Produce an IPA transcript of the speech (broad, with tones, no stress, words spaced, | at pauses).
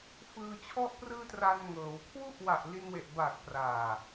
fɯː˧t͡ɕʰɔ˥˩ʔprɯː˥˩ tra˧nŋɤː˩˦w kʰwu˦˥ʔwa˨˩ʔ li˧nwe˨˩ʔbaː˨˩k̚ praː˨˩